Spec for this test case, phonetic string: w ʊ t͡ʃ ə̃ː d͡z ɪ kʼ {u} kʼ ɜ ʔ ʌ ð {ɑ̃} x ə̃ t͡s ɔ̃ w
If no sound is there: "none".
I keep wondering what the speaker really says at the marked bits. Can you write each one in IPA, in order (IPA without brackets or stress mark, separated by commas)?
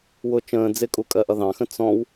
u, ɑ̃